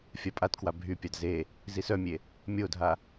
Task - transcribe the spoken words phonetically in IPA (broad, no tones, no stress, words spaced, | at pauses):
fʲapʼatkwa bʱypʲad ze | zisœmʲe | mʲodʱa